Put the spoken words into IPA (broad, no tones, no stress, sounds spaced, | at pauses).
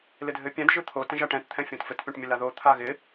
l ɪ dʱ ɘ pʲ ɛ̃ d ʒ ɯ t̪ʰ o t ɛ̃ ʒ a ʈ ɛ̃ t t̪ʰ ɛ̃ fʲ õ t f ɘ t pʲ õ ʈ mʲ ɘ l a ð o t̪ʰ a ɣ ɪ